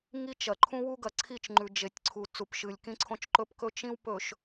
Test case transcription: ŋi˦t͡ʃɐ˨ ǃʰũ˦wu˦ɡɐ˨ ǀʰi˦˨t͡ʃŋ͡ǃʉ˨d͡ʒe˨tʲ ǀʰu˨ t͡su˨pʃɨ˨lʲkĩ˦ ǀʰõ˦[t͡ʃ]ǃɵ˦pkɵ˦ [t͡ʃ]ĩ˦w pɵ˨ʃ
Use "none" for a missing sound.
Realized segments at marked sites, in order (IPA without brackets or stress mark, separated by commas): t͡ʃ, t͡ʃ